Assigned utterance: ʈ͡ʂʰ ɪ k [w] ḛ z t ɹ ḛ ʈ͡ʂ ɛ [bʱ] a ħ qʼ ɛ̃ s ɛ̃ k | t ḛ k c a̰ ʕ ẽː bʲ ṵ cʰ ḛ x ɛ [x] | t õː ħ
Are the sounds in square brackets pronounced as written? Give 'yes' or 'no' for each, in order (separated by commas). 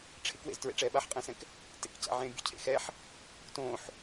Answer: yes, no, no